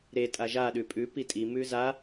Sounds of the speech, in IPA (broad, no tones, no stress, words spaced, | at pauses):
ɾe tʼaʒaɗʉ pʼʉ pitʼi mʉza